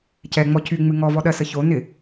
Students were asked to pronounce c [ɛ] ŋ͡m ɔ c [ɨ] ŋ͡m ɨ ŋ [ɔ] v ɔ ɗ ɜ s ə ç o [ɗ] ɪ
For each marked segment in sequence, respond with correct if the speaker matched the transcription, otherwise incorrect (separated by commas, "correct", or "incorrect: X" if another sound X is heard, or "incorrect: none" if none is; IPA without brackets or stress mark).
correct, incorrect: y, correct, incorrect: n